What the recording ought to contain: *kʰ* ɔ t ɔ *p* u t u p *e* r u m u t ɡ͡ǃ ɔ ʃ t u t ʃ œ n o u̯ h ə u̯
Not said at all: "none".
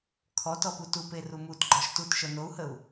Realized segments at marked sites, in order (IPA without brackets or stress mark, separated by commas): kʰ, p, e